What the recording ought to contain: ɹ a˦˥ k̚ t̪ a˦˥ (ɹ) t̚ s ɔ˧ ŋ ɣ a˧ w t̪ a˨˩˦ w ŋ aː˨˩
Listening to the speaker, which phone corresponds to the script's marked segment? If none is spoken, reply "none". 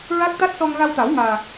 none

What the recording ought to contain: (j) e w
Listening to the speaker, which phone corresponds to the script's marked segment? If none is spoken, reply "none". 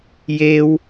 j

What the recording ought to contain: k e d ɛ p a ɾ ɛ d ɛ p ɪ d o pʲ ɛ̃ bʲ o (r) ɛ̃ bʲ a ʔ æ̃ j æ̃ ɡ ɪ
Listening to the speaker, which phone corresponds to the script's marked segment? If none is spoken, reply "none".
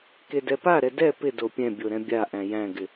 ɾ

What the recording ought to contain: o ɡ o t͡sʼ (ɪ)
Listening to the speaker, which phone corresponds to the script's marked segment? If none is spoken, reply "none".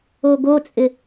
ɪ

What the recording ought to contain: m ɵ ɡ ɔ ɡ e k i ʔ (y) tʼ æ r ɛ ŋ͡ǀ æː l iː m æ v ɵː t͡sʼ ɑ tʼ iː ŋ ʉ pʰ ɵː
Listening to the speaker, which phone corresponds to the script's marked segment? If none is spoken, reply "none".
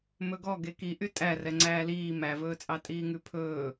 y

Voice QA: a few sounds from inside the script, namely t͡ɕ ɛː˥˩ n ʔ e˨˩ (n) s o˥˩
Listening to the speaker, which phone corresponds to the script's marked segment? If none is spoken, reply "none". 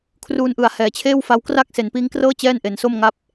n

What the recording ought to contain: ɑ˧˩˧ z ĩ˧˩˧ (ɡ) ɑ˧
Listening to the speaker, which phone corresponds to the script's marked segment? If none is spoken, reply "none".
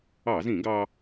ɡ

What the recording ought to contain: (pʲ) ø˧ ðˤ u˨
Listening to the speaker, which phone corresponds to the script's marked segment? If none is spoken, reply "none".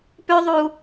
p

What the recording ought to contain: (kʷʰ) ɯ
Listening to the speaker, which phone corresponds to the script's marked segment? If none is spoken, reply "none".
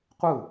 qʷ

